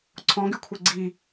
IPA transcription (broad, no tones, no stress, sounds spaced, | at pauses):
ǀʰ ɔ̃ ɡ y kʷʰ ɛ ɡ͡ǀ i